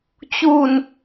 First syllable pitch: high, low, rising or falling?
low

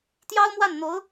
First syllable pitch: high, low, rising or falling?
high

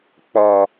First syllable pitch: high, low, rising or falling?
low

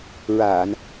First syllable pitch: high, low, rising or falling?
low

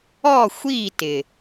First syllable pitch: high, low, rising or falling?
falling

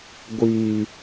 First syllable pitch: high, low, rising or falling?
low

